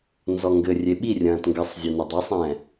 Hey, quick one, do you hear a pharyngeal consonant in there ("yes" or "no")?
no